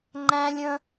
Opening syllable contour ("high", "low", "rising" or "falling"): high